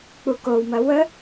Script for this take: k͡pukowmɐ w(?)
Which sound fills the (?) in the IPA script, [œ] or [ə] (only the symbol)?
ə